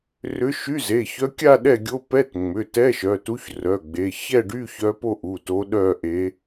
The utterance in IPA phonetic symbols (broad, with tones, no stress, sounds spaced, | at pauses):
r ʏ˧˥ ʃ y˧˥˧ z e˩˧˩ ç œ˧˥ kʲ a˥˧ ɗ ɛ˥˧ ɡʲ o˧˥˧ p ɛ˧˥˧ t ŋ͡m ʏ˩˧˩ t ɛ˧˥˧ ʃ œ˩˧˩ t u˧˥ ç r œ˩˧˩ ɡ͡b e˩˧˩ ç ɛ˥˧ ɖ y˧˥˧ ç œ˧˥ p o˥˧ ʔ u˩˧˩ t o˧˥ ɗ œ˥˧ ʔ e˧˥